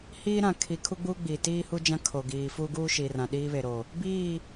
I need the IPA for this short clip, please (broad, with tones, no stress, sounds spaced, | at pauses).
h iː˦ ɾ ã˨ kʰ i˨ kʰ u˦ ɡ͡b uː˦ ɡ͡b iː˨ t iː˦ h u˦ d͡ʒ ã˦ kʰ o˨ ɡ iː˨ f u˦ ɡ uː˦ ʃ i˨ r ã˨ ɗ iː˦ β e˨ ɾ o˨ | b iː˦˨